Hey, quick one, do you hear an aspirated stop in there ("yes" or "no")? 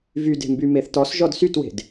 no